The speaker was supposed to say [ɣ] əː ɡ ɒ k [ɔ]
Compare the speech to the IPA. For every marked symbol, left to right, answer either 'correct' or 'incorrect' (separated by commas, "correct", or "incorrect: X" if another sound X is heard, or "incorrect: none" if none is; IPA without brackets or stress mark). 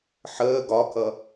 incorrect: ħ, incorrect: ʌ